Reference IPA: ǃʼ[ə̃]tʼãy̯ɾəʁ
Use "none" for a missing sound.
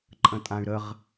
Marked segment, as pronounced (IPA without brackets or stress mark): ə̃